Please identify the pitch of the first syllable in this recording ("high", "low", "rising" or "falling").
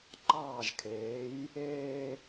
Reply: falling